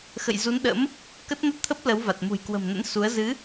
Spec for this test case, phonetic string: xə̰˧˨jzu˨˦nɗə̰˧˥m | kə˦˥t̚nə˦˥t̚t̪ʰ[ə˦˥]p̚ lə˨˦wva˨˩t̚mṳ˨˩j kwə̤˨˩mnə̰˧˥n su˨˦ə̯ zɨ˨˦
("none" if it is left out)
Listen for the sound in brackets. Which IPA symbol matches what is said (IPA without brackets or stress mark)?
ə˦˥